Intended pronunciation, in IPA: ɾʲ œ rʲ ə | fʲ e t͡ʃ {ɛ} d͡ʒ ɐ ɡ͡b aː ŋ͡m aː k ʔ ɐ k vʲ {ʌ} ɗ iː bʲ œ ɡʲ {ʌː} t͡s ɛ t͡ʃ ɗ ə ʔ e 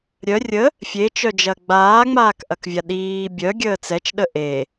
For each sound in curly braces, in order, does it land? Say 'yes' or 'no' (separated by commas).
no, no, no